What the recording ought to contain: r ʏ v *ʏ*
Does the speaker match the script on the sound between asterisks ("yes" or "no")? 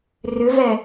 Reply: no